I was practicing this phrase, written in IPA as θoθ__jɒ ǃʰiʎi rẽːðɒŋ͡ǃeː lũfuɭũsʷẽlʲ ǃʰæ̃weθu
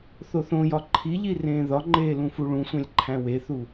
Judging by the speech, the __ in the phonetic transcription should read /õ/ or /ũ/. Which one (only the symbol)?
õ